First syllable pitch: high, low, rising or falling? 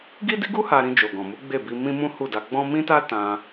high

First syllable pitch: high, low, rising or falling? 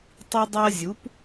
high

